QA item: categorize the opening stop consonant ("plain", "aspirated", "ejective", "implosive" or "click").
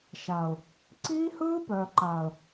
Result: click